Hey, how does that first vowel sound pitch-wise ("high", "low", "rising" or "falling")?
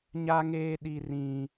high